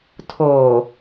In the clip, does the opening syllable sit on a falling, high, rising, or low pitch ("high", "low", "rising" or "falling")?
low